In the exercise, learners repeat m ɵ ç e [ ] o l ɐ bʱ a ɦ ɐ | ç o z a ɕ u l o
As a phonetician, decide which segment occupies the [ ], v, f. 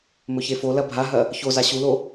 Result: f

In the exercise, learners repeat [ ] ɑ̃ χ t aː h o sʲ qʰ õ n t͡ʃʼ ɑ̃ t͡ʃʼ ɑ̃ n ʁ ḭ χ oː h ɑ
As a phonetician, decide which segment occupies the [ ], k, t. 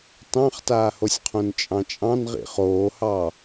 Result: t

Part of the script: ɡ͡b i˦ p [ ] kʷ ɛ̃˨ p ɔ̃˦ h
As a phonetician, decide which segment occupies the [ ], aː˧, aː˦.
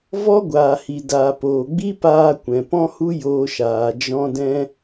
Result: aː˧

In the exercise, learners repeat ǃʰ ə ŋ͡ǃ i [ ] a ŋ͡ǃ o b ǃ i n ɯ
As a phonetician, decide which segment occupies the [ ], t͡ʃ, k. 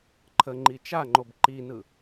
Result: t͡ʃ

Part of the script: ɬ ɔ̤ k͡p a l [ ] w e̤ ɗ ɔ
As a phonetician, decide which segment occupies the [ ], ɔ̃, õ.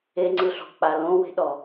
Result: õ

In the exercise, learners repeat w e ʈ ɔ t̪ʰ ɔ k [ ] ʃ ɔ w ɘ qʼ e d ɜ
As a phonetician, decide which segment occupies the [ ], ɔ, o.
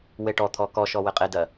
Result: ɔ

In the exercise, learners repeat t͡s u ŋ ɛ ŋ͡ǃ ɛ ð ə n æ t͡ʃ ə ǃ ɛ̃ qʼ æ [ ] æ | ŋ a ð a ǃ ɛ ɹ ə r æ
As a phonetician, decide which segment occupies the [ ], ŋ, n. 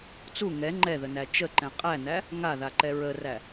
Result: n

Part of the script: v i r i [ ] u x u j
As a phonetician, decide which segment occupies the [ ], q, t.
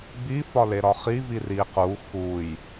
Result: q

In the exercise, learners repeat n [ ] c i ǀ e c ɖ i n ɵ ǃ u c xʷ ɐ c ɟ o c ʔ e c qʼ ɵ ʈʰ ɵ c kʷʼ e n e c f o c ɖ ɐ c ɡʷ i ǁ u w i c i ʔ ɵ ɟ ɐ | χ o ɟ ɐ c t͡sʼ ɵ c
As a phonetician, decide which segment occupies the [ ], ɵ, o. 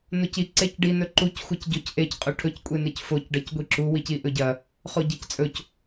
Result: o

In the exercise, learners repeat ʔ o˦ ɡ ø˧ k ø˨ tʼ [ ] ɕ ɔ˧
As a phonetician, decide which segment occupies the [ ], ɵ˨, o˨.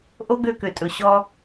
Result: ɵ˨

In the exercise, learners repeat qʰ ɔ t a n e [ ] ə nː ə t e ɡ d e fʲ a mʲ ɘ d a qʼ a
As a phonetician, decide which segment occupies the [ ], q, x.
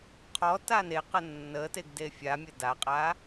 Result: q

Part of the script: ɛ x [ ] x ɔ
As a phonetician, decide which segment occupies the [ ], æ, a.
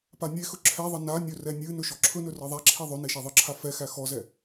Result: æ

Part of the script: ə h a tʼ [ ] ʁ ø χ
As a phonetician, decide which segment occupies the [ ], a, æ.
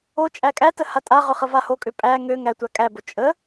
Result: a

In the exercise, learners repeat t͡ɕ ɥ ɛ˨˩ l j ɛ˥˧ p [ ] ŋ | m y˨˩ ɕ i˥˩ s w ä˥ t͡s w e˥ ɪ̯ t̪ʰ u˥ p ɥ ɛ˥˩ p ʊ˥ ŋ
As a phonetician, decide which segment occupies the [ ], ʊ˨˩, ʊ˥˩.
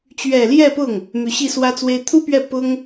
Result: ʊ˥˩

